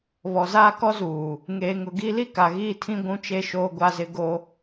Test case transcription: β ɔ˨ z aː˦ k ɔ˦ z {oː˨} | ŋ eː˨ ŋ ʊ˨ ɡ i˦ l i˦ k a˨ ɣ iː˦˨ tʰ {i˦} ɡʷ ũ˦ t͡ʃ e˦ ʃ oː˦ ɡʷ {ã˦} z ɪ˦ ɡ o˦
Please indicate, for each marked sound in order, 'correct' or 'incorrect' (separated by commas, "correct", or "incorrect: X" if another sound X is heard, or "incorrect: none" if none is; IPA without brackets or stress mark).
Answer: incorrect: uː˨, incorrect: ĩ˦, incorrect: a˦